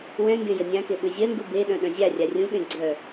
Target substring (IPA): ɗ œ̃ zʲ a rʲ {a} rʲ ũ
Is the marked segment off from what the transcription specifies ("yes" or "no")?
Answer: no